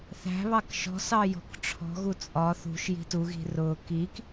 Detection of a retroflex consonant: present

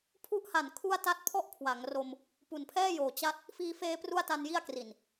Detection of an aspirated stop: present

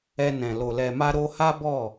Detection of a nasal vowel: present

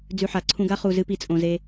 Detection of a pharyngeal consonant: present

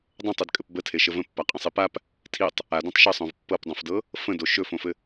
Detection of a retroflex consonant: absent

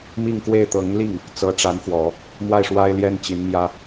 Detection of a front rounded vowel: absent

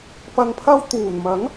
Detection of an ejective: absent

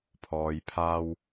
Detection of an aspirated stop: present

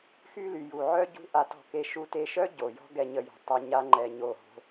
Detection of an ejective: absent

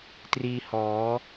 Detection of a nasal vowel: absent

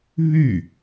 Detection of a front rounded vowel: present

